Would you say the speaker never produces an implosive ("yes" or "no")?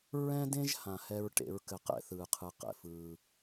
yes